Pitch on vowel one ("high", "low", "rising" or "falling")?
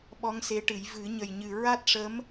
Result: rising